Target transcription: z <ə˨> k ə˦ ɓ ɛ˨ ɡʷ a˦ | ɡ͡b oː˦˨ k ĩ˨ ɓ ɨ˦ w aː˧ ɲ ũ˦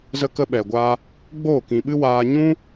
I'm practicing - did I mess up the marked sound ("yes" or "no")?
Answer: yes